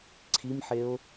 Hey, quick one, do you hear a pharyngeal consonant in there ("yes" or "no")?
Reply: yes